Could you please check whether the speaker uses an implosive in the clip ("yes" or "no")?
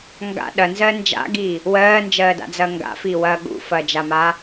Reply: yes